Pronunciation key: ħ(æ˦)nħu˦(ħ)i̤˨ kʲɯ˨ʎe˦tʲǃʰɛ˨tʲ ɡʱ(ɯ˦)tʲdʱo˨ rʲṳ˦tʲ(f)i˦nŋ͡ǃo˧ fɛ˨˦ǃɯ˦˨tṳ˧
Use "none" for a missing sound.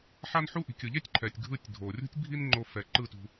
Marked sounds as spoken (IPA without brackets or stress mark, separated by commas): a˦, ʔ, ɯ˦˨, bʱ